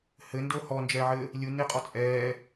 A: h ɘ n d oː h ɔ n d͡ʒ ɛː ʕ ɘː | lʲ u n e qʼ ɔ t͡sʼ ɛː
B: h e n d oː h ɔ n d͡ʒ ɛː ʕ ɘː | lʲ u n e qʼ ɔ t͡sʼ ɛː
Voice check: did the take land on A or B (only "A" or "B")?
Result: A